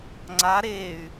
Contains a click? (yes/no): yes